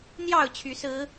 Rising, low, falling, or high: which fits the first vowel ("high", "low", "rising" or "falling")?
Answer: falling